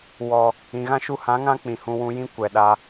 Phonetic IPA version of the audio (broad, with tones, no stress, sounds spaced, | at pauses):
w ɔ˨ | ĩ˨ ɣ ã˦ ʃ u˧ h ã˨˦ ŋ ã˦ k͡p ĩ˨ h ũ˨ w ũ˧ j ĩ˦ kʷ ɛ˨ ɗ a˧